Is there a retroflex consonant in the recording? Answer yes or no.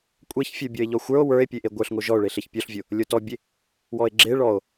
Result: yes